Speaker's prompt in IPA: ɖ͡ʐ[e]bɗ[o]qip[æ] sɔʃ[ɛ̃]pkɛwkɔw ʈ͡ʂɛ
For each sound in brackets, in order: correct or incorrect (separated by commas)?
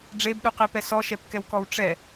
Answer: correct, incorrect, incorrect, incorrect